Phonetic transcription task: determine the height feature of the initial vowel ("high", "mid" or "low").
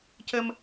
mid